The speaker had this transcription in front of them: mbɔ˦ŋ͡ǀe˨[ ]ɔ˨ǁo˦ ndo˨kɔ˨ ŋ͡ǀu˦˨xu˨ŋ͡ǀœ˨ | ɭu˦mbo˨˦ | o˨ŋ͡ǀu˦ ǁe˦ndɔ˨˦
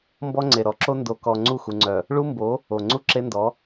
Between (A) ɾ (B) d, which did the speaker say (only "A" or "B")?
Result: A